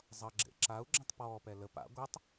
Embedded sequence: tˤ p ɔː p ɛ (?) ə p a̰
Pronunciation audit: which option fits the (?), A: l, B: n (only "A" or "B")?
A